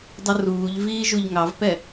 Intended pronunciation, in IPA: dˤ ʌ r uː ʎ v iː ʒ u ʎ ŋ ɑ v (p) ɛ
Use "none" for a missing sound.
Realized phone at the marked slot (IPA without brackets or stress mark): p